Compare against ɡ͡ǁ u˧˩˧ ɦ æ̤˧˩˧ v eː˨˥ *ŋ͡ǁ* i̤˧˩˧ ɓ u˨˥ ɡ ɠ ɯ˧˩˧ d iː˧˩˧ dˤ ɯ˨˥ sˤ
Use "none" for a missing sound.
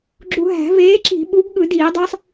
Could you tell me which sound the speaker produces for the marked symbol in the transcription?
ǁ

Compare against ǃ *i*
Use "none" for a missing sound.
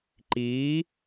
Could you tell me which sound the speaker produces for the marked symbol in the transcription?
iː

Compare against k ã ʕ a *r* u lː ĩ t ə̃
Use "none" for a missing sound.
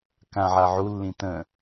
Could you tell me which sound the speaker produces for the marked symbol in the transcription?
ʕ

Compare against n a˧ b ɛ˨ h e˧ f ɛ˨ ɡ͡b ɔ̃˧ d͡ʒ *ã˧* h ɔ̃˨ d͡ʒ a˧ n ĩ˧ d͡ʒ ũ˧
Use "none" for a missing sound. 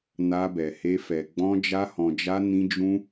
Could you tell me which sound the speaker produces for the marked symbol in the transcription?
a˧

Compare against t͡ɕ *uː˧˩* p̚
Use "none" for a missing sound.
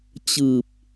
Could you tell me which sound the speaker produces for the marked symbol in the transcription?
ɯː˧˩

